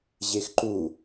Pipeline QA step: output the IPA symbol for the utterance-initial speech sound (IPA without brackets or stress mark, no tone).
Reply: ʑ